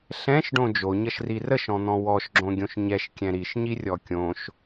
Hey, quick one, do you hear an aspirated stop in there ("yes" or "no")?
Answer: no